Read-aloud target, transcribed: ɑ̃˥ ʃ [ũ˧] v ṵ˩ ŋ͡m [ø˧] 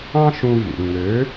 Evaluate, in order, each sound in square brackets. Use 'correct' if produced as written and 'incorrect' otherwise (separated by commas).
correct, incorrect